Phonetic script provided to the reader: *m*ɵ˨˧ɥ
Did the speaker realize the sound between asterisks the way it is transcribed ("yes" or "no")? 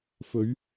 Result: no